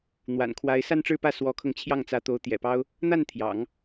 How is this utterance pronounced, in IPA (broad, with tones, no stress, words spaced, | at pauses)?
n̪wa̰˨˩nkʰwa˧˥ɪ̯ sa˥˧nʈ͡ʂɻ̩˥˧pä˥˩ swɔ˧˥kʰɤ˧ŋt͡ɕʰjɑ˥˩ŋt͡sä˧˥ t̪o˧˥ʊ̯t̪jɛ̰˨˩pɑ˥ʊ̯ | n̪a˥˩n t̪ʰjɑ̰˨˩˦ŋ